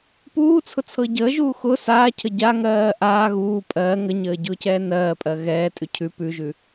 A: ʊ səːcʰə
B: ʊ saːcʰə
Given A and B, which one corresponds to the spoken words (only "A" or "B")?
B